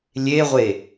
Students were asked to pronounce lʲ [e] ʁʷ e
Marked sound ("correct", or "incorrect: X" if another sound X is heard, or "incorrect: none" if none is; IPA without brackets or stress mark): correct